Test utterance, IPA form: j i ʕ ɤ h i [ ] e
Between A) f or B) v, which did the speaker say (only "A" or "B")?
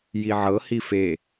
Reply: A